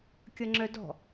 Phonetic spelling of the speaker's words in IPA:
kʲ ʌ ŋ͡ǁ œ d ɔ̤

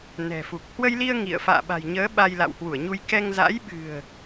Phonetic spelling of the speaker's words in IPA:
n ɛ̤˨˩ f u˨˩ k̚ h w ə˧ j l i˧ ə̯ ŋ ḭ˧˨ ə̯ f a̰ː˧˨ ɓ a̤˨˩ j ɲ əː˨˦ ɓ a˧ j l a̰˧˨ w h w u˧˩ ə̯ ɲ u˧ j k ɛ˧ ŋ z a̰˧˥ j ɓ ɨ̤˨˩ ə̯

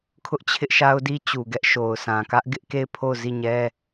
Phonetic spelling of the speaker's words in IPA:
kʰ ʊ˦ ʔ t͡ɕʰ ɪ˦ ʔ ʃ a˦ ʊ̯ d i˦ t͡ɕ u˨ ɡ ɛ˦ ʔ ʃ o˨ ʊ̯ s ã˨ k ä˦ ʔ ɡ ɪ˦ ʔ k e˦˨ ɪ̯ pʰ o˦˨ ʊ̯ z i˦˨ ɲ ɛ˦

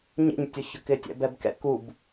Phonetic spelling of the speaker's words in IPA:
ɲ ḛ ɲ tʲ ʊ ç ʊ k ɪ tʲ ɛ̰ b ɛ b k ɛ̰ k u b

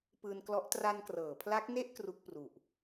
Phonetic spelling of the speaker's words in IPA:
p ɯː˧ n k l ɔ˦˥ ʔ t r a˧ n k r ɤː˩˦ pʰ l a˦˥ k̚ n e˥˩ ʔ k r u˦˥ k̚ p r u˨˩ ʔ

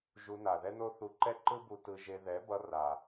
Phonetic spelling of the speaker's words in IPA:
ʒ u˧ n a˨ ð ɛ˦ n o˦ θ u˧ ǃ ɛ˦ ǃ ɯ˦ b u˧ t ɯ˧ ʒ e˧ ð ɛ˨˦ b ʌ˧ r a˨

